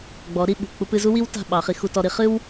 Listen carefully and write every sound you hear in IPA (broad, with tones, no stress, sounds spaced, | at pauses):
ɡ͡b ɔ˩˥ ɾ i˥˩ ɓ ṳ˩ k͡p u˧ p ɨ˧ z u˥ w i˥ w t a̤˥˩ ɓ ɑ˩˥ χ i˩˥ x u˧ t ɔ˧ ɾ i˩˥ χ ɨ˥ w